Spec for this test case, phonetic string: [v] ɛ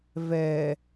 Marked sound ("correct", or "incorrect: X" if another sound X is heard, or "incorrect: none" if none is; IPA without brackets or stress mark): correct